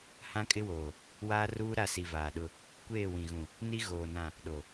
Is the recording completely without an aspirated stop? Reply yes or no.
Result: yes